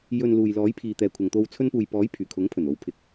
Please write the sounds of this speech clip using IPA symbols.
j ɵ˨ n l uː˨ j l ɔː˨˥ j pʰ iː˨ t̪ ɛː˨ kʷʰ ɐ˨ ŋ t̪ o˧ w t͡sʰ ɵ˧ n p uː˨ j p ɔː˨˥ j pʰ yː˨˩ kʰ ʊ˨˥ ŋ pʰ ɵ˨˩ n o˨˥ w pʰ ɪ˨˥ k̚

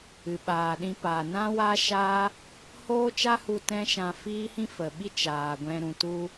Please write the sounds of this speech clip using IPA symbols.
ɨ˨ ɓ aː˨ ɗ ĩ˧ p aː˨ n ã˦ w aː˦ ʃ aː˦ | h oː˦ t͡ʃ a˦ h u˧ t ɛ̃˧ ʃ ã˨ f iː˦ h ĩ˦ f ə˨ ɓ i˦ t͡ʃ aː˨ ɡʷ ɛ̃˧ ɾ ũ˨ t u˧

